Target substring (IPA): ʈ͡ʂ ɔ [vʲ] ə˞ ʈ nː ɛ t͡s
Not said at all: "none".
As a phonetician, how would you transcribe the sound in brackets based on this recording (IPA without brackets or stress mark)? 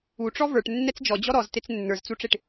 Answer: v